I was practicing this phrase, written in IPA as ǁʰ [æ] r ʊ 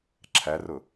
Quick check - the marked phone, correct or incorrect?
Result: correct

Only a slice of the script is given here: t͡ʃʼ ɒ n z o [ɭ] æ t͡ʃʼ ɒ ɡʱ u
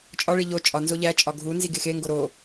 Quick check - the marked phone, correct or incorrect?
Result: incorrect: ʎ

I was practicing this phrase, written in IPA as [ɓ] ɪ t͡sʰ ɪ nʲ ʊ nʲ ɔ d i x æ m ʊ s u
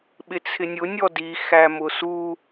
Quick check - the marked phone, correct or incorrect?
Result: correct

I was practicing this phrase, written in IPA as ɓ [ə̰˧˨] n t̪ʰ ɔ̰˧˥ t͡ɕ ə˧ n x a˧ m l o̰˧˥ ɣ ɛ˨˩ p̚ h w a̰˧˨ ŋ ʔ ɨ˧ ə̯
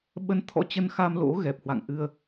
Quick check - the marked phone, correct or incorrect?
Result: incorrect: ə˧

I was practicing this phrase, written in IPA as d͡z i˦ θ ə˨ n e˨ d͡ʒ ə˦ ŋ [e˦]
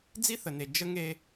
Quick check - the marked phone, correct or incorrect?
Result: correct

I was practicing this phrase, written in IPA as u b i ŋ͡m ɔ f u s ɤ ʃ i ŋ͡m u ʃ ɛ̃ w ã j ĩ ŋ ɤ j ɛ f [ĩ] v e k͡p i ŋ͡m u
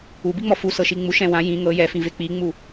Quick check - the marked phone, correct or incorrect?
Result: correct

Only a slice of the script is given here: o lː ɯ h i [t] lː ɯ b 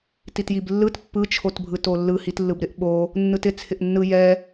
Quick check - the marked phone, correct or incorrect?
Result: correct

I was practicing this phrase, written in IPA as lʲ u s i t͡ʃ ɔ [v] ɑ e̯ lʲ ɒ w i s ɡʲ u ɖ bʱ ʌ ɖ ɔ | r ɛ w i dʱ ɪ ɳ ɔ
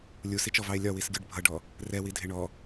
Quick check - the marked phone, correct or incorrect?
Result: correct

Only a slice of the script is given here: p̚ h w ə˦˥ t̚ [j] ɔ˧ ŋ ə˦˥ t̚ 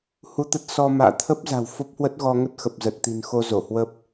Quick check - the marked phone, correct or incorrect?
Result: incorrect: ɣ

